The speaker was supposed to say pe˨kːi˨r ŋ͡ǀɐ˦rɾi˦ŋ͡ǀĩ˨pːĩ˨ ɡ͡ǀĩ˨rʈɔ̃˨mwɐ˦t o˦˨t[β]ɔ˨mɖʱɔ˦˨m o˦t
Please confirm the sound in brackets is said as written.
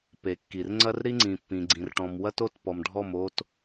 no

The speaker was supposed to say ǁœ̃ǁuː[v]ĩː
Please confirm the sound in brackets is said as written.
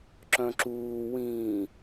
no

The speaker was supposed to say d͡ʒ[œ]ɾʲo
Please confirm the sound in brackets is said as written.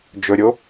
no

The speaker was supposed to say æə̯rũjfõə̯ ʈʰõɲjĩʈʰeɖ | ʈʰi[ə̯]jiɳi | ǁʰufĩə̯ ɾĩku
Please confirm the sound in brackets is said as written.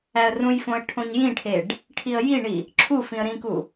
yes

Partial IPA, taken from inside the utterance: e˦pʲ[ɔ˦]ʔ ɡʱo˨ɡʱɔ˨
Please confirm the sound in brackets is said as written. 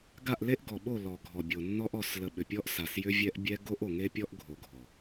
yes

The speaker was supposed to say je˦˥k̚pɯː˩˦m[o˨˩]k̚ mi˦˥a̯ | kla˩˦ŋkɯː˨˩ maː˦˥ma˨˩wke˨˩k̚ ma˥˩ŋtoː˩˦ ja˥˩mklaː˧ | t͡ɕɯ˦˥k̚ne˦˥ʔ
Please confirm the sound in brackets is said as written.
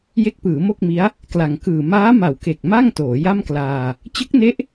no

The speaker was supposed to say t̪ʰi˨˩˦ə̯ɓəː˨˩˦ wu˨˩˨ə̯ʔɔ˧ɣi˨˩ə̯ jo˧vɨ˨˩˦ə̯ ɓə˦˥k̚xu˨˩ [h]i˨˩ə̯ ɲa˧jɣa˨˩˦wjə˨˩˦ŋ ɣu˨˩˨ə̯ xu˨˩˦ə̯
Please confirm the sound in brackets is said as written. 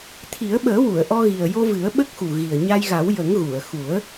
no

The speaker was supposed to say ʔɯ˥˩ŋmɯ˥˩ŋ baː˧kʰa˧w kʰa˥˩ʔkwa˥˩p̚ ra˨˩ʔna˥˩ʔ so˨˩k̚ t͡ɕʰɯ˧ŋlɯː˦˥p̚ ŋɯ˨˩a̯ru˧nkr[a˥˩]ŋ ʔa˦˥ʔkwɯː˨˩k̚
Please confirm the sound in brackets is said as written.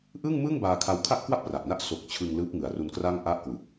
yes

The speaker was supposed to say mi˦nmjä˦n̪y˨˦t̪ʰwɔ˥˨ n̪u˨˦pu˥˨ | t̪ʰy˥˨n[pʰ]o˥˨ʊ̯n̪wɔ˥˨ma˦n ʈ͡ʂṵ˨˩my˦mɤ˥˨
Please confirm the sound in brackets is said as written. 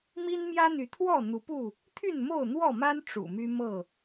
no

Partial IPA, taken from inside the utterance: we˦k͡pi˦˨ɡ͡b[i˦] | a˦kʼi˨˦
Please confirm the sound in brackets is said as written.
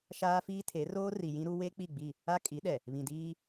no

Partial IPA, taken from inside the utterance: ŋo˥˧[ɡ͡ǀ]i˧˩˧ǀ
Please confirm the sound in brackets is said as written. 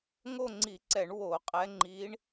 no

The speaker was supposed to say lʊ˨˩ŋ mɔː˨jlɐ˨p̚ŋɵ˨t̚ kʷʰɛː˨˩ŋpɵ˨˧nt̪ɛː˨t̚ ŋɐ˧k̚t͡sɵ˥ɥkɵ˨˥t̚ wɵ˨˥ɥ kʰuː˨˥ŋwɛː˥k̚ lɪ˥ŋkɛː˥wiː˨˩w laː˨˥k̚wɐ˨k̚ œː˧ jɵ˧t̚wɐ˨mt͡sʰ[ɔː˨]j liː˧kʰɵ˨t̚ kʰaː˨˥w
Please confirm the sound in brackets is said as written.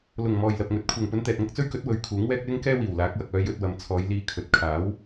no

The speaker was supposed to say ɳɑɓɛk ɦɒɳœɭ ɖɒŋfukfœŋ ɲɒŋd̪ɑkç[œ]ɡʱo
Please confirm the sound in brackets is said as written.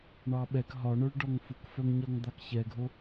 no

